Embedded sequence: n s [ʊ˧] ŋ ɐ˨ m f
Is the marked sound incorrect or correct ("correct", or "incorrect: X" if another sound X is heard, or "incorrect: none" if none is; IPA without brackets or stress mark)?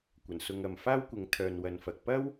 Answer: correct